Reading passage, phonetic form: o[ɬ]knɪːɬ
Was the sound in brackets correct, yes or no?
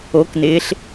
no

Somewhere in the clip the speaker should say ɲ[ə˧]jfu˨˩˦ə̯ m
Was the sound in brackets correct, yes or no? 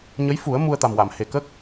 no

